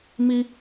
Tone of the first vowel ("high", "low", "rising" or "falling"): high